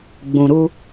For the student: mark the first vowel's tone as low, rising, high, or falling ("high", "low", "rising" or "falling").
low